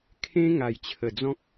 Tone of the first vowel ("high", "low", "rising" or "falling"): high